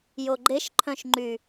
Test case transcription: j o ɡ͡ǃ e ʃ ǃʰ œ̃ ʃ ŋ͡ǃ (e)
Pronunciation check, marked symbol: incorrect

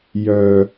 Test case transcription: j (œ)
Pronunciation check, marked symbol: correct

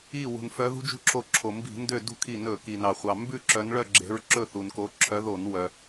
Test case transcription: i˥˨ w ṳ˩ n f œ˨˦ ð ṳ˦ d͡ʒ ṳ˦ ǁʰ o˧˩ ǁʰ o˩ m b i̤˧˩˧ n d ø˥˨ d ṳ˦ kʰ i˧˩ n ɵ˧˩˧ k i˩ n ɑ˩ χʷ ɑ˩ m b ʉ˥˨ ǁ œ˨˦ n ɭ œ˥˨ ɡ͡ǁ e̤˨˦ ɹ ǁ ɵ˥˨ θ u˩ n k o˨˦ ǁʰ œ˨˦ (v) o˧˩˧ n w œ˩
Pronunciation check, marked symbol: incorrect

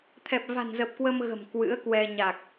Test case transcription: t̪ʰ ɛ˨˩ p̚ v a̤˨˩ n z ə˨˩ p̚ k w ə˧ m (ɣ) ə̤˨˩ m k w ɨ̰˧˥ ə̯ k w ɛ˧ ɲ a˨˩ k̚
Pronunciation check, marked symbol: correct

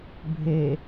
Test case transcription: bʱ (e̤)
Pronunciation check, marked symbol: incorrect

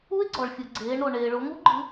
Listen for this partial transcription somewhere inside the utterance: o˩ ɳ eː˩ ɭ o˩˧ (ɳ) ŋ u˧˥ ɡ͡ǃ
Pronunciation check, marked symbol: incorrect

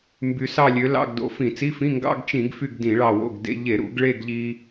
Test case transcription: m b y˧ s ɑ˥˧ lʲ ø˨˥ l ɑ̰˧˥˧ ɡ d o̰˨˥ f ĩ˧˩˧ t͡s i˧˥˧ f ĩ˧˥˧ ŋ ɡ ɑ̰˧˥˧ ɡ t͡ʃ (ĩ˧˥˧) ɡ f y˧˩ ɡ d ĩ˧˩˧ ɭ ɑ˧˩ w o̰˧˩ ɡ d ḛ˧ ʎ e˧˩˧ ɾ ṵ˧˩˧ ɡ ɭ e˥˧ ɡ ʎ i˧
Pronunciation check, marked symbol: incorrect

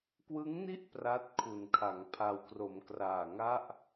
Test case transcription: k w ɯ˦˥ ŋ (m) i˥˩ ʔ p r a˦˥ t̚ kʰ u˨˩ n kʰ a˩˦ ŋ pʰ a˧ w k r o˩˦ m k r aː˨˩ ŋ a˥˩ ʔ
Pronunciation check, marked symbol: incorrect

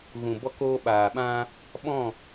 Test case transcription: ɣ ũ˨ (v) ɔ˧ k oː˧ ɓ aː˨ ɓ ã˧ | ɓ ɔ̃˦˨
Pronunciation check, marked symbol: incorrect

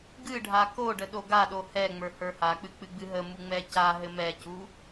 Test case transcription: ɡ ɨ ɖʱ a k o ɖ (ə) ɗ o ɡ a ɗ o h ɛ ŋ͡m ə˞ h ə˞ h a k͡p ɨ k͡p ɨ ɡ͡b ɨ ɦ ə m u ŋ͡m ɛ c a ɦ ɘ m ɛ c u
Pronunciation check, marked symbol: correct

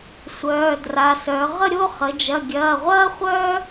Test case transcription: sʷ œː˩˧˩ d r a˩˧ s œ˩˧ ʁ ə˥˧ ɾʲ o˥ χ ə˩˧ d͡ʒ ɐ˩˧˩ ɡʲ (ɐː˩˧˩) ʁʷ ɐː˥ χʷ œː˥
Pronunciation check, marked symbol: correct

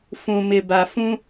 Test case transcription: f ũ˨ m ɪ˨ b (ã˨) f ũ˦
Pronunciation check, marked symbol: incorrect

